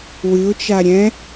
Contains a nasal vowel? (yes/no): yes